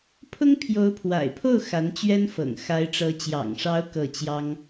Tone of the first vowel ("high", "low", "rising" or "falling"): high